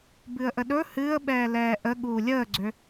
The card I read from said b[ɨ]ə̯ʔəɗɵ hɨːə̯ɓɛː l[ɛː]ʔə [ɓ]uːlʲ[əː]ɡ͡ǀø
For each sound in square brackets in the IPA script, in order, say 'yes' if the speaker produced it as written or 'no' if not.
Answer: yes, yes, no, yes

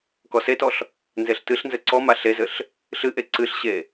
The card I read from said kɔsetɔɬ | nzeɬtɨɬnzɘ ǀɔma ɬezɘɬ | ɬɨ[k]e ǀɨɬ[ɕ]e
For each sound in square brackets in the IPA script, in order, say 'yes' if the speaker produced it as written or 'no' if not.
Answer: no, yes

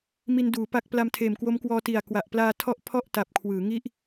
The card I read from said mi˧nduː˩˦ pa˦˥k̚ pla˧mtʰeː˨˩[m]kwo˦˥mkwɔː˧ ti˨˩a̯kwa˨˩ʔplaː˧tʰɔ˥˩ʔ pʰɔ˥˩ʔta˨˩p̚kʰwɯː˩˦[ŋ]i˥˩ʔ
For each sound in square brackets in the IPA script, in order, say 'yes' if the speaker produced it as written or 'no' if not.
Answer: yes, yes

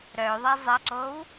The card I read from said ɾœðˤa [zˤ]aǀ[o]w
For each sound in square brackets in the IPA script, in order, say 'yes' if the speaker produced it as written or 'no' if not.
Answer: yes, no

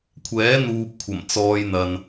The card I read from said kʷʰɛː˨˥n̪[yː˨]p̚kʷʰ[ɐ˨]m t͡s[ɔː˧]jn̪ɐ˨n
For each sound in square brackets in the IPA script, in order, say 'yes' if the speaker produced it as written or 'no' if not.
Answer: no, no, yes

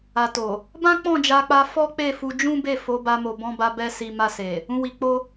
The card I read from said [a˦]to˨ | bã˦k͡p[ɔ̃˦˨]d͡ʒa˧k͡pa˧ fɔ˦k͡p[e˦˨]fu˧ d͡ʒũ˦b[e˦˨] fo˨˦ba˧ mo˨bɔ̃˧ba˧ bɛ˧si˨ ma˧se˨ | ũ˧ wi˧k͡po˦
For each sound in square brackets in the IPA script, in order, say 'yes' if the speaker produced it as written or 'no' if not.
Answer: no, yes, yes, yes

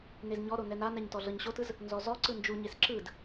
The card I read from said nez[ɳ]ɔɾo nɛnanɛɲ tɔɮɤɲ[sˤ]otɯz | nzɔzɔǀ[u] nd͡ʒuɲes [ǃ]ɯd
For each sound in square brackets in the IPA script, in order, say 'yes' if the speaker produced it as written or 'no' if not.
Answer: no, no, no, no

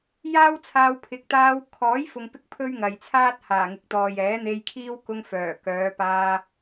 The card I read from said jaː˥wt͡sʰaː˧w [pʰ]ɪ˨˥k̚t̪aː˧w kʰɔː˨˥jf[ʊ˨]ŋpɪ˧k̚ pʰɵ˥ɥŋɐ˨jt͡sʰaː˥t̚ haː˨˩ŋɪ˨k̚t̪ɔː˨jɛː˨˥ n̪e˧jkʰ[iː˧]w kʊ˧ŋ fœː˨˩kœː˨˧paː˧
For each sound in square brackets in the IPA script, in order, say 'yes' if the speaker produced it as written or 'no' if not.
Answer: yes, yes, no

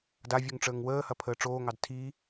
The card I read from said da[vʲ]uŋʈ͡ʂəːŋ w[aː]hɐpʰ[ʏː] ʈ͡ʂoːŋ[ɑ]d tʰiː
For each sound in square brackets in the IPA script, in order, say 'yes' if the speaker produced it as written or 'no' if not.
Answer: yes, no, no, yes

